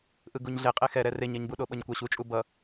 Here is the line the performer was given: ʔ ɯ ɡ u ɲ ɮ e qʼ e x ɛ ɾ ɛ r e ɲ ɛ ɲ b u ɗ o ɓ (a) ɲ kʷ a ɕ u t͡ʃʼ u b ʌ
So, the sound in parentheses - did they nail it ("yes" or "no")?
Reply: no